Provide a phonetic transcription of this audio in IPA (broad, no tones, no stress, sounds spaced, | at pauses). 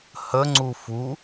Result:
h ə ŋ͡ǀ u f u